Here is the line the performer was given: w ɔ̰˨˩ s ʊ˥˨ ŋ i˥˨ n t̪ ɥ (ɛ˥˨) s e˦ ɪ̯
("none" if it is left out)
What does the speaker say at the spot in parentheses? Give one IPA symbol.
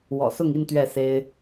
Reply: ɛ˥˨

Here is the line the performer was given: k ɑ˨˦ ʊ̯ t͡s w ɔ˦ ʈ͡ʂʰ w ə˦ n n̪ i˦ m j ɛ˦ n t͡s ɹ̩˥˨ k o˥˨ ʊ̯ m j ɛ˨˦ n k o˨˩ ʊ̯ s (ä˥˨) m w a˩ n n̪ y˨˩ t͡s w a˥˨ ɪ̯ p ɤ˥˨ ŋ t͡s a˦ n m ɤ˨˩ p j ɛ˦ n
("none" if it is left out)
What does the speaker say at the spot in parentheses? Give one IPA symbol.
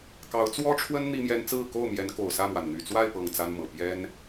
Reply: ä˥˨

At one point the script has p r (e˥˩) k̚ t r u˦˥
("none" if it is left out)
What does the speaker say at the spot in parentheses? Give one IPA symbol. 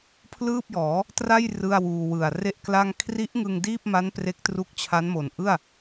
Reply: e˦˥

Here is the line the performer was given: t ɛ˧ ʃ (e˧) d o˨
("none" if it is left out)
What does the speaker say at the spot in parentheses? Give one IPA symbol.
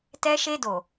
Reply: e˧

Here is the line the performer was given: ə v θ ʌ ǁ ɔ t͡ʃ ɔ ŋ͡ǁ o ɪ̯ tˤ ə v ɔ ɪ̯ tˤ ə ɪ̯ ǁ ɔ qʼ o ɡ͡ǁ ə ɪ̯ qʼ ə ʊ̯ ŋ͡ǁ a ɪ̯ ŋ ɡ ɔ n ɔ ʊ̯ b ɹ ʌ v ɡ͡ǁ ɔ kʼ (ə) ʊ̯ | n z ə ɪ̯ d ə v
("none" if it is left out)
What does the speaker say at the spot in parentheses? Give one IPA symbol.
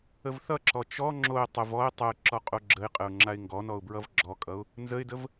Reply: ʌ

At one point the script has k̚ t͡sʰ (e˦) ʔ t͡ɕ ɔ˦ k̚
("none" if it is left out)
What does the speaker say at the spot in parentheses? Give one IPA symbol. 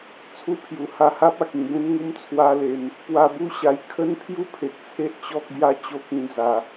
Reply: e˦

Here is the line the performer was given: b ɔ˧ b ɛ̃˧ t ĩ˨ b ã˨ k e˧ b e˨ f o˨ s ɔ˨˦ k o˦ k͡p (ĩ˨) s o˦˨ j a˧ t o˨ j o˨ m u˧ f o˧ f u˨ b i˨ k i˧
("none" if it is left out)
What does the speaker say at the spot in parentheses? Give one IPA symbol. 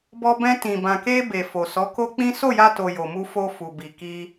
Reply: ĩ˦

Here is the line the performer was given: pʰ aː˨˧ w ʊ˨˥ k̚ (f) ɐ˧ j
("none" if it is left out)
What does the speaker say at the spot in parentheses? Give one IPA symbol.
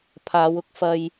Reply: f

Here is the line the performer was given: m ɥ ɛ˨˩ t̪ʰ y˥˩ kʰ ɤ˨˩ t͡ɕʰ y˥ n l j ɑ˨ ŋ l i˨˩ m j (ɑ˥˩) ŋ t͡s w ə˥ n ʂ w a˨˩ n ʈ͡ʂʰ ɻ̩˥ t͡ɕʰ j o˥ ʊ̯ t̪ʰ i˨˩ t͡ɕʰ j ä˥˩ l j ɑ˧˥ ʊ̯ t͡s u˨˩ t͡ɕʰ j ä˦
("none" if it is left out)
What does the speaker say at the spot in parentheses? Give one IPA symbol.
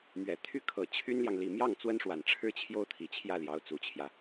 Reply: ɑ˥˩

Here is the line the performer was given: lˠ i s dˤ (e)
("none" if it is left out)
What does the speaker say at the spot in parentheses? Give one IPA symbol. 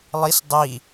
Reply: i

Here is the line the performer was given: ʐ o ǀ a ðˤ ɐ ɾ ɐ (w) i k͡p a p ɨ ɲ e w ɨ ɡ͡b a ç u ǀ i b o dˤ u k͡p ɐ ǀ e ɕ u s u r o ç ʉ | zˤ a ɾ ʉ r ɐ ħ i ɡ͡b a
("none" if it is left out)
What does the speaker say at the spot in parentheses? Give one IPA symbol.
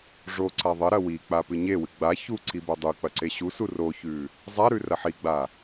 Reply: w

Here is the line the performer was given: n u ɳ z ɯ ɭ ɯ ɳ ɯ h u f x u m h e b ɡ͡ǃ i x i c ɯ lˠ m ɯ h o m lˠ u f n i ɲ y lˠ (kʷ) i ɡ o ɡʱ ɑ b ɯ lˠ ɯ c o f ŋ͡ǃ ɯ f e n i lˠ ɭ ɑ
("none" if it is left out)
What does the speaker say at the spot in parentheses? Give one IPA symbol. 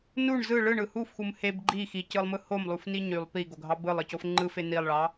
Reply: p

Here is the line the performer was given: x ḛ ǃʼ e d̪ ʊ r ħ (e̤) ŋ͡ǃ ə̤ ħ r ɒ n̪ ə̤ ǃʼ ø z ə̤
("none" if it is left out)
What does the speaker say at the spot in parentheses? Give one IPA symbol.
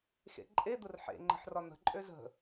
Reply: ḛ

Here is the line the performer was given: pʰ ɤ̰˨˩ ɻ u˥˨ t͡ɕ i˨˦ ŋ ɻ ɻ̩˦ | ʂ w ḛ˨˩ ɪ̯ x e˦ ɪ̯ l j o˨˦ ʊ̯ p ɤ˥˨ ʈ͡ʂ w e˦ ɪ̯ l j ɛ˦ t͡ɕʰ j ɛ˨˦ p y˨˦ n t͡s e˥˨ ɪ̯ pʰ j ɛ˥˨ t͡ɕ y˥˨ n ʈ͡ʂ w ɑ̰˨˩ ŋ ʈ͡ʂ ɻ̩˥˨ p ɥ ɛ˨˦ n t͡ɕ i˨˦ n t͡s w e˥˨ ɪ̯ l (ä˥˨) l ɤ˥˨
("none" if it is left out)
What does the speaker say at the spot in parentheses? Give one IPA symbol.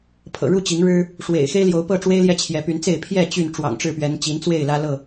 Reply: ä˦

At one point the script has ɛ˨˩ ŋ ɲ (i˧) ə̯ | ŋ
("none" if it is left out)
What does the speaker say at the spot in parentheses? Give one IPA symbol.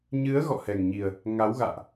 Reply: i˨˩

